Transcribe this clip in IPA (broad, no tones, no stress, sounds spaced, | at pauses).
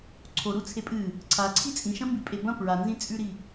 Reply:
ǀʰ o ɾ u t͡sʰ e pʼ ɨ | ǀʰ a ǀʰ i t͡sʼ ĩ ʃ ɐ̃ m b i pʼ e b ɐ̃ p ɹ a n z ĩ t͡sʼ ʉ ɾ i